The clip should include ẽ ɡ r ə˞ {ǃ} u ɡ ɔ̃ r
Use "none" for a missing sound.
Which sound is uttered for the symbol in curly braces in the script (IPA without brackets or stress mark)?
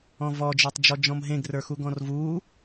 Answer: x